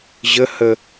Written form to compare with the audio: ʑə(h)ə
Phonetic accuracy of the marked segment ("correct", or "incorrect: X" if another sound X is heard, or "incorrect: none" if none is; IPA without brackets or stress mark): correct